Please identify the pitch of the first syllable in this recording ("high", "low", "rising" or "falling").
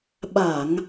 low